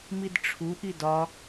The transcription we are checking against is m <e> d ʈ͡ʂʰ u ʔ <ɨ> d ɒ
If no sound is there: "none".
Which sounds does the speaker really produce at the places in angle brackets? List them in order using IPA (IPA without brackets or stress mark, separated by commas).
i, i